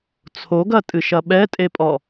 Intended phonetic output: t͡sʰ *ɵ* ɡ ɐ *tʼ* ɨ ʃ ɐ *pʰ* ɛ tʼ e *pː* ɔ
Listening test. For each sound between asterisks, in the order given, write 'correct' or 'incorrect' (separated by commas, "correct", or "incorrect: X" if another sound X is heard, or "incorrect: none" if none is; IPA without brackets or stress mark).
incorrect: o, correct, incorrect: ɓ, incorrect: pʼ